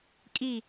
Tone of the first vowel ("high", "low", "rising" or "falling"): falling